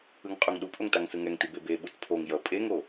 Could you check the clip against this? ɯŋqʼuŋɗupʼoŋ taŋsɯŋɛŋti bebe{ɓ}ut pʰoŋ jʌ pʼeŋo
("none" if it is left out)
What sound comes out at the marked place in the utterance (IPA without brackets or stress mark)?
ɓ